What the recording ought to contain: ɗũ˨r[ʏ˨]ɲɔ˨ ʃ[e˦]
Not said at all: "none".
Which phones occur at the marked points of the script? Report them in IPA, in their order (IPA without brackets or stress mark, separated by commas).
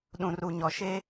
u˨, e˦